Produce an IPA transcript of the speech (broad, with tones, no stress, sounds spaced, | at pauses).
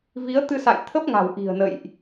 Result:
v i˨˦ ə̯ t̪ ɨ˧ s a̰˧˨ j t̪ʰ ə˦˥ p̚ ŋ a̤˨˩ w ʔ i̤˨˩ ə̯ n ə̰˧˨ j ʔ